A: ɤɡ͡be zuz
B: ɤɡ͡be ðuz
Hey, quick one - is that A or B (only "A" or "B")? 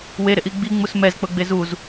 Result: A